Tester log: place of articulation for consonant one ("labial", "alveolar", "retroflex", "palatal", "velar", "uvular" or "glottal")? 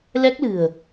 alveolar